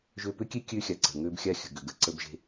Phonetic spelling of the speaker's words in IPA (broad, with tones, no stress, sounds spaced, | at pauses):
ʒ ø˧ p ʏ˦ kʲ e˦ kʲ ø˦ xʲ a˨ ǀ ə̤˨ ŋ ø˦ b xʲ a˦ xʲ ə̤˨ ɡ ʏ˨ ɡ ə˨ ǀ ə˦ b ʒ e̤˦